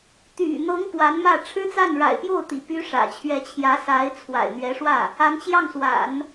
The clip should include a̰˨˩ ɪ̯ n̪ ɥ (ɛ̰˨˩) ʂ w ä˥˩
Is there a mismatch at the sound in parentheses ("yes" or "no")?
yes